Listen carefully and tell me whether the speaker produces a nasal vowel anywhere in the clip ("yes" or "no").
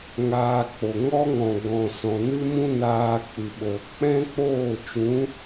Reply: yes